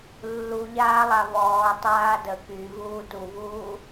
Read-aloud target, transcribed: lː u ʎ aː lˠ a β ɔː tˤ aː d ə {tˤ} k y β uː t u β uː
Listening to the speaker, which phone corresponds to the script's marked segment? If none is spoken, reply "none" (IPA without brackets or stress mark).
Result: none